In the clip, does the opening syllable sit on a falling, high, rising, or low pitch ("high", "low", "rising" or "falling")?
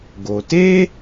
low